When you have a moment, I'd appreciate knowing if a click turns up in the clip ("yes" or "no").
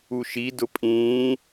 no